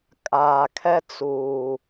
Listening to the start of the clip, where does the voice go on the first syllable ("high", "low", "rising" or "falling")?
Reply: low